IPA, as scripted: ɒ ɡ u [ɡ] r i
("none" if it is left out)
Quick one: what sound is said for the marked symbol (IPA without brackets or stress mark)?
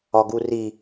none